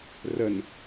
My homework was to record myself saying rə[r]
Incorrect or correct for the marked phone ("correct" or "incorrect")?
incorrect